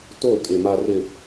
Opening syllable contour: falling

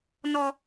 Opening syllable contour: low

